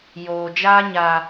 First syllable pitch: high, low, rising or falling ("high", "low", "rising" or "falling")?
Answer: low